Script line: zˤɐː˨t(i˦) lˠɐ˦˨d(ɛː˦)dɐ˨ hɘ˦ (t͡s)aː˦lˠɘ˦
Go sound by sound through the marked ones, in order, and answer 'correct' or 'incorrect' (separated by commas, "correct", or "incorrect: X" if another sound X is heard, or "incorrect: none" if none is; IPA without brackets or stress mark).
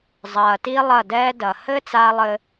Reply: correct, correct, correct